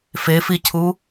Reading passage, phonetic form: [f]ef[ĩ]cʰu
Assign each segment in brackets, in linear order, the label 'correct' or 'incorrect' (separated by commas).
correct, incorrect